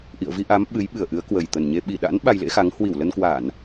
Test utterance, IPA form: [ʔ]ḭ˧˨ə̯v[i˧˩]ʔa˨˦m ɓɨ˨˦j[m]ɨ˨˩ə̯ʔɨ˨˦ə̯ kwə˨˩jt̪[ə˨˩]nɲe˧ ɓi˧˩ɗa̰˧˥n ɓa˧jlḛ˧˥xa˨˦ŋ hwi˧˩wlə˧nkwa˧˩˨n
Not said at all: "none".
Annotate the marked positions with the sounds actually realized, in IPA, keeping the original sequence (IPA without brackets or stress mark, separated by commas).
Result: ʔ, i˧, ɓ, ə˨˩